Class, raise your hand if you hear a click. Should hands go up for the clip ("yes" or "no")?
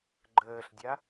yes